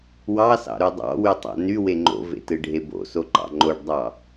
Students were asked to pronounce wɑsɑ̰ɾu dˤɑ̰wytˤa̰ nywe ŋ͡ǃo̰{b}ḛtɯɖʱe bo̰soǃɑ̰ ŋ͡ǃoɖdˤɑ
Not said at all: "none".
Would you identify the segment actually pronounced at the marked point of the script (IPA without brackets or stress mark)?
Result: v